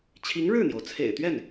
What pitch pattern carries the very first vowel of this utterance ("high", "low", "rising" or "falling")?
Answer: rising